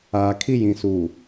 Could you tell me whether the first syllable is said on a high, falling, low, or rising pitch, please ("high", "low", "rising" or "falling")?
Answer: low